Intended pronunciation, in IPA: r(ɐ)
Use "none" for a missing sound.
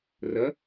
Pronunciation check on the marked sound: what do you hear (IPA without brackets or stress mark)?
ɐ